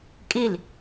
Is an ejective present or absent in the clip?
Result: present